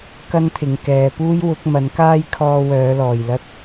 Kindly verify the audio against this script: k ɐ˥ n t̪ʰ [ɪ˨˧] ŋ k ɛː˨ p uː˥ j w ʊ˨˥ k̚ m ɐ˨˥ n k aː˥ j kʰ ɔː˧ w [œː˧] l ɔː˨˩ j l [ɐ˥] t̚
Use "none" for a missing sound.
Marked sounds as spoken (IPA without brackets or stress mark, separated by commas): ɪ˨˧, œː˨˧, ɐ˥